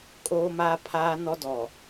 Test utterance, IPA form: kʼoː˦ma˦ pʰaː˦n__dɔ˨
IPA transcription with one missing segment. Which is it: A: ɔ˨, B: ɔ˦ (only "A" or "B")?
B